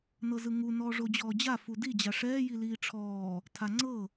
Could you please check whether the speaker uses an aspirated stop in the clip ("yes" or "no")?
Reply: yes